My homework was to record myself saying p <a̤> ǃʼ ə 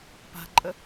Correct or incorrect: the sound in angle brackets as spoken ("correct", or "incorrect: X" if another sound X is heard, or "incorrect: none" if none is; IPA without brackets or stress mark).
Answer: correct